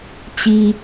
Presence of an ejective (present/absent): absent